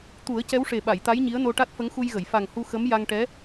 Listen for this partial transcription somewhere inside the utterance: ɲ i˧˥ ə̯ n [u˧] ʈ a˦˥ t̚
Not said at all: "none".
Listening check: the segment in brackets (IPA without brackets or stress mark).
o˧